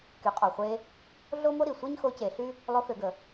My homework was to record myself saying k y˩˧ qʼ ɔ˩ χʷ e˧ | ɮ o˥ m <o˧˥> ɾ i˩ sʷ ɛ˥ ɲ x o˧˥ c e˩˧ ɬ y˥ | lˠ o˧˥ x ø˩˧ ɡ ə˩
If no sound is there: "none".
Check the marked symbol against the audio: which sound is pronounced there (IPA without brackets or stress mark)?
o˥